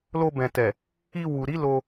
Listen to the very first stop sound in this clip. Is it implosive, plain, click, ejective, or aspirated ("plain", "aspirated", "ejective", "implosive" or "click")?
plain